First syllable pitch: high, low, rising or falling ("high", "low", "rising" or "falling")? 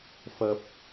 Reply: low